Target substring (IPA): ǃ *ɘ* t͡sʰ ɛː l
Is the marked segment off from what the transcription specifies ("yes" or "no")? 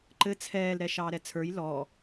no